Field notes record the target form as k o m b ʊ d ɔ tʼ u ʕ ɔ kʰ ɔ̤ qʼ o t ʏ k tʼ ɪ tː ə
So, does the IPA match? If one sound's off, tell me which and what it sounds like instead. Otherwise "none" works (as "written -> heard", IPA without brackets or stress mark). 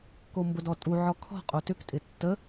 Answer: none